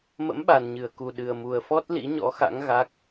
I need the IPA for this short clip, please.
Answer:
m ə̰˧˥ m ɓ a˨˩ n ɲ ɨ˧˩ ə̯ k u˨˩ ɗ ɨ˨˩ ə̯ m u˨˩ ə̯ f ɔ˦˥ t̚ l ḭ˧˥ ɲ ɔ̰˧˥ x a̰˧˥ ŋ ɣ a˦˥ k̚

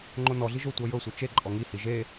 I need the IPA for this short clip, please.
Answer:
ŋ͡ǃ o n ɔ ɮ i ʒ o tʷ ɤ j ɤ sʷ ɯ t͡ʃ e ǃʼ ɔ ŋ i h i ʒ e

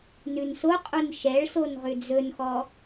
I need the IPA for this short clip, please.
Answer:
n ʉ n s o qʼ u n ʃ ɛ ɭ s o n ʁ ʉ d͡z ɵ n x ɔ

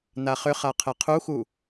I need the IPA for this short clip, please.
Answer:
n a χ ʏ χ a qʰ ɛ qʰ u x u

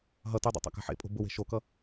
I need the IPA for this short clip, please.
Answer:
ɦ ʌ t y dˤ o̰ tˤ a̰ k a̤ ħ ḛ pʼ o̤ b ʊ w e̤ ʃ o k ʌ

